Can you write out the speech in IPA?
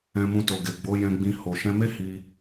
ɛ̃˧ m ũ˧ t o˨ ɡ e˨ ɡ͡b o˨˦ j ɛ̃˧ ɡ͡b ĩ˧ h o˨ ʃ ɛ̃˧ m e˦ h i˧

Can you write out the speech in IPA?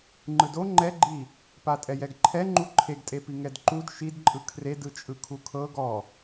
ŋ͡ǃ ɯ d o ŋ͡ǃ ɛ ɡ͡ǃ i | p a tʼ ɛ j ɛ ɡ ǃʰ ɛ ŋ͡ǃ u ǃʰ e ɡ tʼ e p i ŋ ɛ d ǃ u d ʃ i d ǃʼ ɯ kʰ r e d ɯ t͡ʃʼ ɯ kʰ u kʰ ɤ ɡ ɔ

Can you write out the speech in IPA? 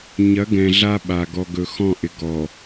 ɲ ɐ˨˦ ɡ ɛ̃˨ ɮ a˦ ɓ a˨ ɡ ɔ˨ ɡ ɵ˨ x ɔ̃˦˨ ʔ ɪ˨ ɡ ɔ˨

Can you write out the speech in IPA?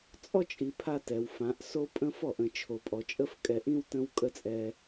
t͡sʼ ɔ˦ t͡ʃʼ i˨ pʰ a˦ t ɛ˨ w f ã˨˦ ʔ s o˦ pʼ ə̃˦ f ɔ˦˨ ʔ ə̃˨ t͡ʃʰ o˨ pʼ ɔ˨ t͡ʃʼ ə˦ f kʼ ɛ˨ ʔ ĩ˦ w t ə̃˦ w kʼ ə˦ t͡sʼ ɛ˦

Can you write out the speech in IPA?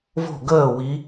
v o̤˥˩ ɡ əː˥˩ w i˨˦

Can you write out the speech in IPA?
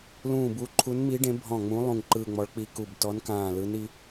l ũː˦˨ b u˧˥ ǃʰ u˧˥ n m i˧˥ ɖ ẽ˧˥ bʱ ɔ̃˦˨ ŋ͡m ũ˧˥ lˠ ũ˦˨ ŋ ǃ ɯː˦˨ ŋ͡m ɔ˧˥ ɭ k͡p i˦˨ k u˦˨ b t ɔ˧˥ n k ãː˦˨ l ɯ˧˥ n i˧˥

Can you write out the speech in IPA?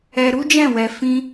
ɛ˧ ɾ u˦ d͡ʒ ɛ̃˦˨ w ɛ˧ f ĩ˧

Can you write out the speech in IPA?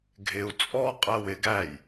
ɡʱ ɪ u̯ t͡sʼ ɔ qʼ ɜ w ɪ ɡ æ j

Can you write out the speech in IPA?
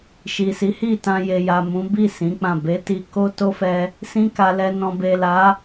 ʃ i˨ s i˨˦ h i˦˨ t ã˧ j e˨ j a˨ m ũ˨˦ b i˦˨ s ĩ˨˦ k͡p ã˦˨ b e˨˦ t i˧ k o˦ t o˦ f ɛ˧ | s ĩ˦ k a˧ l ɛ˧ n ɔ̃˨ b e˨ l a˨˦

